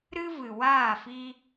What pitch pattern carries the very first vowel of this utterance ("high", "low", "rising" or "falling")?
high